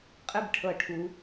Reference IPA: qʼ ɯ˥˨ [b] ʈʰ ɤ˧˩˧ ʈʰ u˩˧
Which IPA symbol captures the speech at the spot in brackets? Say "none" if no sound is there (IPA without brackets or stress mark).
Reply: b